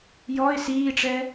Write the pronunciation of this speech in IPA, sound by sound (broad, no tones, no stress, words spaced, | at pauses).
jɔɪ̯ siːʈ͡ʂɛ